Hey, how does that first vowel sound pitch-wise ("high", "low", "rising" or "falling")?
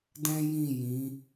high